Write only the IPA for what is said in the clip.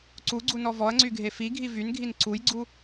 ǀ u ɡ͡ǀ u n ɔ v ɔ ɐ̯ ŋ͡ǀ y ɡʱ e f i ɡʱ i v y n ɡʱ i n ǀ u j ɡ͡ǀ u

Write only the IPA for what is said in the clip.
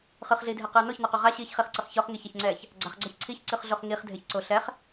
χ ɯ χ ɮ iː dʱ e q ɯː n o ç n ɔ q o ʁ a ɕ iː ç χ i χ ǀ ɤ χ ç ɔ χ ŋ i ç a ç ŋ͡ǀ ɛː ç | ɡ͡ǀ a χ ɡ͡ǀ a ç ǀʰ i ç ǀ ɯ χ ɮ o χ ŋ i χ dʱ e ç ǀ o ɬ ɛ χ

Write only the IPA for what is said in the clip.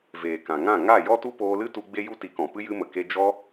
v eː˨ k ã˨ ŋ ã˦˨ ŋ a˦˨ j ɔ˦ t u˦ p oː˧ l ɨ˦ t u˧ ɡ͡b e˦ j u˦ t i˨˦ k ɔ̃˨ p ɨ˦ j ɨ˧ m ə˨ k e˧ d͡ʒ ɔ˦

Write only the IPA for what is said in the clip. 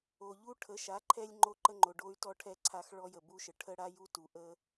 o˨ ʎ u˦ ʈʰ ə˨˦ ʃ a˨˦ ǃʰ ɛ˧ lʲ ŋ͡ǃ o˧ ǃ ə˧ ŋ͡ǃ o˨ ɖ o˧ y̯ t ɔ˧ ʈʰ ɛ˧ ǀʰ a˧ x ɭ ɔ˧ j ə˨ b u˧ ʃ ə˨ ʈʰ ə˦ ɽ a˦ j u˦ t u˨ ʔ ə˦

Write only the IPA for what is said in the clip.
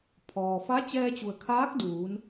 pʰ ɔː˩ f a˧˥ t͡ɕ ɛː˧ t͡ɕ u˩ ə̯ kʰ aː˧˥ k̚ d uː˩˧ n

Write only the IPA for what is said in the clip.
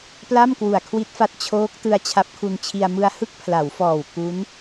p l a˥˩ m k w u˨˩ a̯ kʰ w i˦˥ t̚ f a˦˥ t̚ t͡ɕʰ oː˦˥ k̚ t ɯ˧ a̯ t͡ɕʰ a˦˥ p̚ kʰ u˧ n t͡ɕʰ i˧ a̯ m ɯ˧ a̯ h ɯ˥˩ k̚ pʰ l a˩˦ w f ɔː˨˩ w k u˦˥ n

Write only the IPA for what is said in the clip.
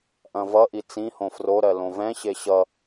ʔ ɐ̃ v ʌ ʔ i t͡s ĩ h õ f r o ɾ ɜ l õ v ɛ̃ ɕ e ɕ ʌ

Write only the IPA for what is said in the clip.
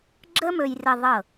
ɡ͡ǁ ə˧ m ɵ˨ j r ə˨ ðˤ ɤ˦˨

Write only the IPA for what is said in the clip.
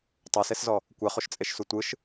tˤ o s e s z ɔ | kʷ ɛ χ o ʃ t͡sʼ e ʃ s u tʷ ɯ ʃ

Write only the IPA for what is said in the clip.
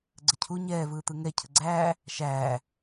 ɡ͡ǀ ə cʰ u ɲ ɛː v ɯː t̪ ɯ ŋ ɛ cʰ ə ɡ͡ǀ æː | ʃ æː

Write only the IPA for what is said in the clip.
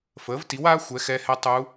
f əː˩˥ v t i˩˥ w aː˧˥ xʷ ɛ˩˥ x ɛ˧˥ h ɛ˧˥ tˤ u˧˥

